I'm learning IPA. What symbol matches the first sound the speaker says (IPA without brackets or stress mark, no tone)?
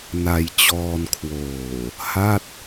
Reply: n